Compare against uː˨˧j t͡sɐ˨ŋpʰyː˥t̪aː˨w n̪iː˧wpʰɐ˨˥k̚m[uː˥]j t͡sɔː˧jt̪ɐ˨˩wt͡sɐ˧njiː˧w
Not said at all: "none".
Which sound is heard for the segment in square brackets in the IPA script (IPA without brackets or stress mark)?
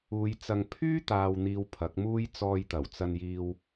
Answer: uː˥